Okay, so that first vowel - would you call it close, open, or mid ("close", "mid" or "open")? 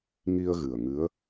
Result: close